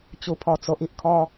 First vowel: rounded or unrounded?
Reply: rounded